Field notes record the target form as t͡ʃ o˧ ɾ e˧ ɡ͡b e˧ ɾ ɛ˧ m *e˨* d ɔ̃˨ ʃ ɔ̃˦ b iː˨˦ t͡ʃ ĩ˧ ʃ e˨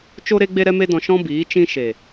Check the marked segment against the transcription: incorrect: e˧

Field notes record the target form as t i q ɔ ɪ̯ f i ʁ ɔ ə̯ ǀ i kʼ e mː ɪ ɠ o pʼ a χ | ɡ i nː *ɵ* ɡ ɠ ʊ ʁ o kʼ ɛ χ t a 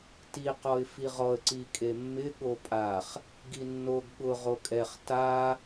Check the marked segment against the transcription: incorrect: o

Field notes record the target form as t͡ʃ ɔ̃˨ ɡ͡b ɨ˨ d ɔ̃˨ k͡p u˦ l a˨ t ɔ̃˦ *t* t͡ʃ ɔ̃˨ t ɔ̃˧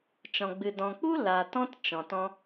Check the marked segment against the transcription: correct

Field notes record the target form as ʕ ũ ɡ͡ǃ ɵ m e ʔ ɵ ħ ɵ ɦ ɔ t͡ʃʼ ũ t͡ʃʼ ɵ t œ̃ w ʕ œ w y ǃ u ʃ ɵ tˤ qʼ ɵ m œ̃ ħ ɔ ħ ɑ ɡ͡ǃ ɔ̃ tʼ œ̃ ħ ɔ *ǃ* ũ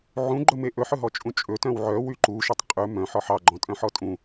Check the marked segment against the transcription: incorrect: tʼ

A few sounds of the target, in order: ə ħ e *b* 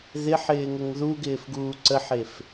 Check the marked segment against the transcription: incorrect: f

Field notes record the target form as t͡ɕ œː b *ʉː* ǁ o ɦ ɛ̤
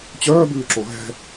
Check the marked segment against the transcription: correct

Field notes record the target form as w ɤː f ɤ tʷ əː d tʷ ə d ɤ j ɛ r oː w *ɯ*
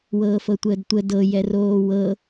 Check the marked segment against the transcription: incorrect: ɤ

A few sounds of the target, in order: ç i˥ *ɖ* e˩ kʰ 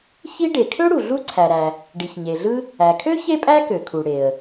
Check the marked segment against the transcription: correct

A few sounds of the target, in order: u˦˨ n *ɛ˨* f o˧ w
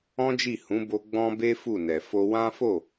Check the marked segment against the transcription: correct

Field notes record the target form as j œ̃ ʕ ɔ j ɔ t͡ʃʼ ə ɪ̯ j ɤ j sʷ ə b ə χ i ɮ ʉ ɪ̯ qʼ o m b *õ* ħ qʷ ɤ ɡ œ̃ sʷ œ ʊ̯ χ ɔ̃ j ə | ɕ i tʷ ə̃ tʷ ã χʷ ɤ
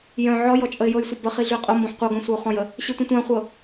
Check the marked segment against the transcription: correct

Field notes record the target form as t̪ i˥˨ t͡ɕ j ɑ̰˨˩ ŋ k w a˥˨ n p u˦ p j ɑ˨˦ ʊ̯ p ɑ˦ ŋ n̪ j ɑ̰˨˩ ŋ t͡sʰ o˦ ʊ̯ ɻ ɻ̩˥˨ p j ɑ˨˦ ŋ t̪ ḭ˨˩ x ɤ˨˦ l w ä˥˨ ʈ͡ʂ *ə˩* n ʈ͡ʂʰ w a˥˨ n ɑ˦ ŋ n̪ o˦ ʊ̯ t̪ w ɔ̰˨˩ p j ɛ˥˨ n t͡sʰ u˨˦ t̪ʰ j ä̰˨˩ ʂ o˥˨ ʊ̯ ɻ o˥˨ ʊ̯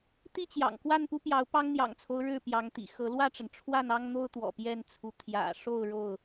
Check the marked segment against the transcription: correct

